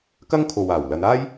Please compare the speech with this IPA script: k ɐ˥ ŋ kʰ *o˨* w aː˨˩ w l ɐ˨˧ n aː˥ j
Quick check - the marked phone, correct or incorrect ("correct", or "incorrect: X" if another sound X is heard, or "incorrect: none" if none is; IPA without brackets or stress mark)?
correct